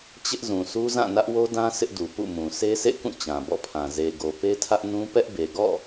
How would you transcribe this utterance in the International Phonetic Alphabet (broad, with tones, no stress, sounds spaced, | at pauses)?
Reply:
t͡ɕ ɪ˦ ʔ z ũ˨ sʰ u˦ z ã˦˨ n ä˦ ʔ w o˦ d ã˦ s ɪ˦ ʔ d u˨ p ṵ˦˨ m ũ˨ sʰ e˦ s ḛ˦˨ k ũ˦˨ t͡ɕ ã˨ b ɔ̰˦˨ pʰ ã˨ z e˨ ɡ o˨ p e˦ tʰ ä˦ ʔ n ũ˦ p ɛ˦ ʔ b e˨ ɡ ɔ̰˦˨